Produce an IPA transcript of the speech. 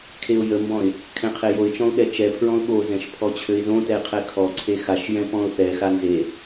kʰ e ʊ̯ j ə m b ɔ̃ ɪ̯ | kʰ ɛ̃ qʰ e j o ɪ̯ t͡ʃ ɔ̃ ʊ̯ ɠ ɛ t͡ʃ ɛ pʰ ɹ ɔ̃ ʊ̯ ɠ o z ɛ̃ ʃ pʰ ɔ t͡ɕʰ ø ɪ̯ z õ t ɛ ɪ̯ qʰ ɛ kʰ ɔ ǀʰ e x a ʃ j ɛ̃ p ɔ̃ ʊ̯ θ ɛ x a n z e

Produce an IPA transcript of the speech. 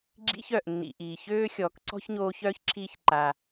ɡ͡ǁ ḭ˦ ç œ˩ ʔ nː ḭ˨ ʔ iː˩ ç øː˥ xʲ ɔː˨ k ǀ ɔ̤˥ ç ɲ oː˦ ç œː˥ ç ǁʰ iː˦ ç ǃ a˨

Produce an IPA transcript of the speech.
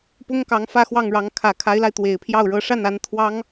p ʊ˥ ŋ k ɑ˧˥ ŋ f ä˥˧ x w ɑ˥˩ ŋ ɻ ɑ˧˥ ŋ kʰ ä˨˩ kʰ a˧˥ ɪ̯ l a˧ ɪ̯ t̪ w e˨˩ ɪ̯ pʰ j ɑ˥˩ ʊ̯ ɻ ɤ˧˥ ʂ a˥˩ n a˧˥ n t̪ʰ w ɑ˥ ŋ

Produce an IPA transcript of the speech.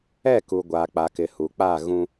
ɛ˦˨ k u˨ ɡʷ aː˨ k͡p a˨ k ɪ˨ h u˨ k͡p a˦˨ ɣ ũ˦

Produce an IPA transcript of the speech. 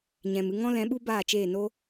ɲ ɛ̃˨ m ɨ˧ ŋ ɔ̃˦ l ɛ̃˨˦ ɓ u˦ b aː˦˨ t͡ʃ eː˦˨ n o˦

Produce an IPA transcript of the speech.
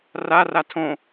r a r a tʰ õ

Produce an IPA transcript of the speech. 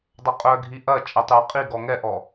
dˤ ɐ qʼ œ ɡʱ i ʔ ɐ t͡ʃʼ ɛ tˤ j ɐ qʼ i ɡ ɔ ŋ ɛ ʔ ɔ

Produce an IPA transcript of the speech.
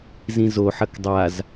z ĩ z o ħ ɐ k dˤ a z

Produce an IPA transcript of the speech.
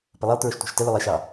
p ə lˠ i lˠ t ɹ ʊ ʃ tʷ æ̤ ʃ t ə l ʊ lˠ i ʃ ɑ

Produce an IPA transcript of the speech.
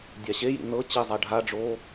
dʲ a ɕ e j ḭ n ɤ t͡ɕ i zˤ a ɖʱ a ɖ͡ʐ oː

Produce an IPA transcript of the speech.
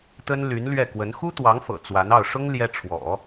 t̪ ə˥ n l y˧˥ n l ɥ ɛ˥˩ k w ə˧˥ n x u˥ t̪ w ɑ˧˥ ŋ f ɤ̰˨˩ t͡s w a˧˥ n ɑ˥˩ ʊ̯ ʂ ʊ˥ ŋ l j ɛ˥ ʈ͡ʂʰ w ɔ̰˨˩˦

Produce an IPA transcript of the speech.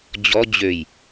d͡ʑ ɔ d͡ʑ ø j

